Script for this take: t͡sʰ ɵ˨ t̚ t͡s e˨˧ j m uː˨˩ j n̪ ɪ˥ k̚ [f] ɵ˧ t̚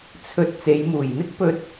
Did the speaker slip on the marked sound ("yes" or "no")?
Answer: yes